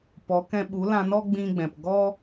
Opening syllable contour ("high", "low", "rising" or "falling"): rising